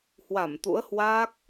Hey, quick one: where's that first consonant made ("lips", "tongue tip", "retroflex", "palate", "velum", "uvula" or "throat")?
throat